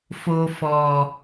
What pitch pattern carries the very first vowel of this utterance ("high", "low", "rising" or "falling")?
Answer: low